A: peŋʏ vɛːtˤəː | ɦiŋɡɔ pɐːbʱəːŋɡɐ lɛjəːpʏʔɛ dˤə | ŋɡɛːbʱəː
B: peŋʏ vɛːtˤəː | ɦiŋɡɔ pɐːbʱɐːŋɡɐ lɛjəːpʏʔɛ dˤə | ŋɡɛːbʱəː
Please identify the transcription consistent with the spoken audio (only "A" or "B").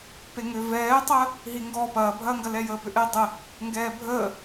B